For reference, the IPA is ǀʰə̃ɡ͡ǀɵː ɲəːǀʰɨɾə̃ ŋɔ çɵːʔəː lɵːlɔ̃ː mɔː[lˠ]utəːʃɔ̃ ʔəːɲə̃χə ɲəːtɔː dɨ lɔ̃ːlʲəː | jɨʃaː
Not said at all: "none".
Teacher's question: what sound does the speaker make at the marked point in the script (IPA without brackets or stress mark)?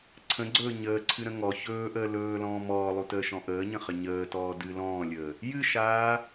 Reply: lˠ